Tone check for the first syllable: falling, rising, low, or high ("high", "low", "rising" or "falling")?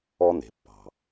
high